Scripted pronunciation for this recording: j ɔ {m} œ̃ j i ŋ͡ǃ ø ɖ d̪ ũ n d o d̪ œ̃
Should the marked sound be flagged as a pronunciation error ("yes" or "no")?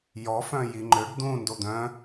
yes